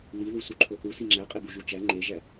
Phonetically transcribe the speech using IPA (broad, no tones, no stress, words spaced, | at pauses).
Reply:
li ðusuǃʰoθu siŋ͡ǁæqʼe buʒut͡ʃæ ŋ͡ǃeʒæ